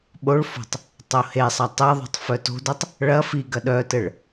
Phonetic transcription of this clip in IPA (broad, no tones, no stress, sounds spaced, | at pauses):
ɓ o ɭ f o̤ tˤ | tˤ o h e sˤ ɐ tˤ e ðˤ o̤ tˤ f œ t o̤ d œ tˤ | ɭ ɐ f i ɡ ɐ ɗ œ t ɘ ɭ